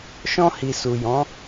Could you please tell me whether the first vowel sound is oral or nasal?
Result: nasal